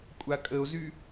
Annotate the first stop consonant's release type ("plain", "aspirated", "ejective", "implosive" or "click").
ejective